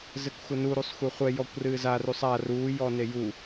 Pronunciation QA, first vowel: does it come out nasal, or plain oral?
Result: oral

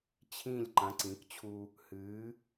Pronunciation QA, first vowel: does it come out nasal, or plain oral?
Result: nasal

